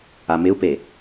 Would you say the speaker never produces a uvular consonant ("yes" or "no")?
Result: yes